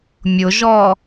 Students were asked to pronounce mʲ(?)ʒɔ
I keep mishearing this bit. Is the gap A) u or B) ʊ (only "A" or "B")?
B